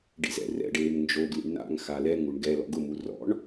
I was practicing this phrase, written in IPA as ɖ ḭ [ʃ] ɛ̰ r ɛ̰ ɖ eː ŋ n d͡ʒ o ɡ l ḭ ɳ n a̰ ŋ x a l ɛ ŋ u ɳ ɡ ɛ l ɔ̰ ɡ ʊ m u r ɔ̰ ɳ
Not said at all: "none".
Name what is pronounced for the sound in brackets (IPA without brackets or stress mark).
z